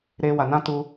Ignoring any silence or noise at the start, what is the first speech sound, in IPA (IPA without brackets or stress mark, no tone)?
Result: ɾ